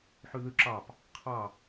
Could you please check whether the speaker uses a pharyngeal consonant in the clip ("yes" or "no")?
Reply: yes